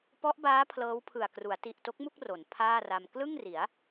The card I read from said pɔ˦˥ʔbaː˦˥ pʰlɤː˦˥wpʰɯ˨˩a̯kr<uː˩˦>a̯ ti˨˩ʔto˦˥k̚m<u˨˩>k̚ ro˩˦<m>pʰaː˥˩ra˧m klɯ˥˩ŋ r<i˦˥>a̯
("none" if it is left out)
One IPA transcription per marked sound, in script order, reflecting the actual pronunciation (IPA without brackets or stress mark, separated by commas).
u˩˦, u˥˩, n, i˩˦